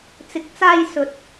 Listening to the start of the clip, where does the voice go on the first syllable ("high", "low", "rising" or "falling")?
rising